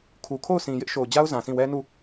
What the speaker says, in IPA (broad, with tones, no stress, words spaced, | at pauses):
kʰu˨kʰo˦˨ʊ̯sʰĩ˨ jɪ˦ʔʃo˨ʊ̯d͡ʑa˦ʊ̯ zã˨sĩ˦˨ wɛ˦nu˦˨